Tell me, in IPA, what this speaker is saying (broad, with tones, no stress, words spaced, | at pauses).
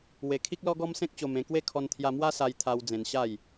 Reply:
we˧kʰi˦k̚ lɔ˦ɡɔ˦msẽ˦k̚ t͡ɕo˧mẽ˧kwe˥˧ kʰɔ˧nt̪ʰja˧mwa˦sa˧j t̪ʰa˧w d͡zẽ˧nɕa˥˧j